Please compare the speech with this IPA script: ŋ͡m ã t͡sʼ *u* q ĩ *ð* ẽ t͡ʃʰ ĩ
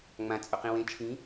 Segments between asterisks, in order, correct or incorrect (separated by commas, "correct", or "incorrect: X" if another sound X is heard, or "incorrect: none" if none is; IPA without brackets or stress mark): incorrect: o, incorrect: w